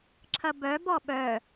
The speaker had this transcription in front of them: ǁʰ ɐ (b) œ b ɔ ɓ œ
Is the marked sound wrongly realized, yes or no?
no